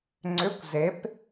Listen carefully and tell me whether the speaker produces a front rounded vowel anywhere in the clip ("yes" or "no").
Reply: yes